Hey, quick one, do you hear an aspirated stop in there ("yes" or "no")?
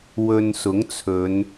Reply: yes